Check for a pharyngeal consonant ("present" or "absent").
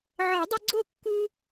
present